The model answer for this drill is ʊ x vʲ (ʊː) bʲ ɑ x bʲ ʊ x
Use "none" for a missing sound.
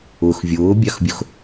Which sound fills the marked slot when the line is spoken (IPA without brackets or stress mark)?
ʊː